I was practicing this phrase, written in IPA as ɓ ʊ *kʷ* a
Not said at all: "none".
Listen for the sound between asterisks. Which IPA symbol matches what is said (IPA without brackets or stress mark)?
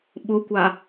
kʷ